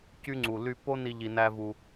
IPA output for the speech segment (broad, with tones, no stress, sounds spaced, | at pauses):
c y˦ ŋ͡ǀ u˨ l y˧ pː o˦ n i˧ ʎ i˧ n æ˦ v u˧